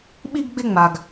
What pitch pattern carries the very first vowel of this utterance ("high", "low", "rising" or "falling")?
high